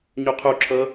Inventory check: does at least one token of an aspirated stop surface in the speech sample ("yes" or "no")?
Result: yes